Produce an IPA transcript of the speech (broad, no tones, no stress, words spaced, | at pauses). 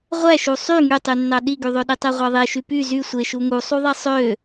ʁʷæʃu sˤy ŋytˤynːɑ ɗiɡyðˤø ɗitˤeʁʷæðˤe ʃypy zy sʷeʃu ŋusˤuðˤe sˤø